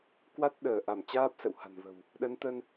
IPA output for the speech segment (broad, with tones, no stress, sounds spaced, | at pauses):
k w a˦˥ t̚ ɗ əː˧˩ ʔ a˧˩ m t͡ɕ aː˦˥ p̚ s ə̰˧˨ w h a̤˨˩ n v ə̤˨˩ w | ɗ ə˨˦ n t̪ ə˧ n